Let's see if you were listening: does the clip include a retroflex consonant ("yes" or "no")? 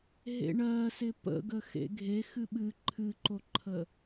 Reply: yes